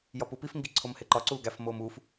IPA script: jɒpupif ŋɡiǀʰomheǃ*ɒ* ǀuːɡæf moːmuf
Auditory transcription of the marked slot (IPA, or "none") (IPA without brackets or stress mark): ɒ